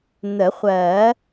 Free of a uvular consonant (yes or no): no